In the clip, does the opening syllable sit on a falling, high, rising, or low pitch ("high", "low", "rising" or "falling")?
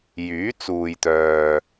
rising